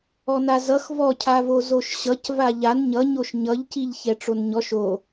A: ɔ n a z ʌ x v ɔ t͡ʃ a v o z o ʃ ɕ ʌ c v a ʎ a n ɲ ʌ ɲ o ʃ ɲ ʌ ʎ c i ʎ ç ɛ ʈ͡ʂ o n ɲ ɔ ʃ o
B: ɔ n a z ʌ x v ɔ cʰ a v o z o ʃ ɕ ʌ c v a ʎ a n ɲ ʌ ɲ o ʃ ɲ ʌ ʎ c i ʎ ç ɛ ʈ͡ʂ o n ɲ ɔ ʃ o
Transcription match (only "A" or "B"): B